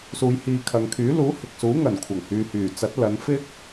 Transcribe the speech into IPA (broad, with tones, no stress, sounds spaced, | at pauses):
s uː˨˧ j h iː˨ kʰ ɐ˨ ŋ kʰ yː˨˥ l uː˨˥ h ɪ˨ k̚ s uː˨˥ ŋ ɐ˨˩ n kʷʰ ɐ˨˩ ŋ h yː˨ h yː˨˩ t͡s ɐ˨˥ t̚ l ɐ˨˧ n f ɪ˥ k̚